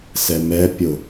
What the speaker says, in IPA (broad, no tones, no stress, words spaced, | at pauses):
sɛmɛ pʲʊ